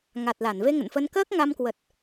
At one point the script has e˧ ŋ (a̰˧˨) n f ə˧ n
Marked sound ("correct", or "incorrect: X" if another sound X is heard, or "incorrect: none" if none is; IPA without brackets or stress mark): incorrect: ə̰˧˨